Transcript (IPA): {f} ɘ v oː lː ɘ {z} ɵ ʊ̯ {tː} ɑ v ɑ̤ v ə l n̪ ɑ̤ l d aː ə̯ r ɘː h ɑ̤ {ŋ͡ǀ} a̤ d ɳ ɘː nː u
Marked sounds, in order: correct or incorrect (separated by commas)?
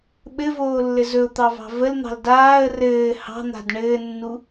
incorrect, correct, incorrect, incorrect